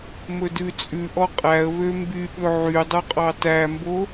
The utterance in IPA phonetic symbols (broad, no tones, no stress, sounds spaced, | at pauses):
m ɵ d ʉ t͡sʼ ʉ ʔ ɔ qʼ æ ə̯ β ø m b y ɓ ɵ ʕ y dˤ u qʼ ɑ t æ m b o